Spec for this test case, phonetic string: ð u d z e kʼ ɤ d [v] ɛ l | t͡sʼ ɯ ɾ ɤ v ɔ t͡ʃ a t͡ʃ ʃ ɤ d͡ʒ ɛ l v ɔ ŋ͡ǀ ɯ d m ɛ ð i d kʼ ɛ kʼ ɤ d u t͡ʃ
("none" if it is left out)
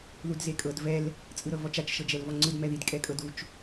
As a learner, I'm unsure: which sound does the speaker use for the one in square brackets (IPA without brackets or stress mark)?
v